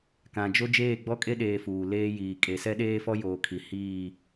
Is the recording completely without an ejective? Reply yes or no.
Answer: no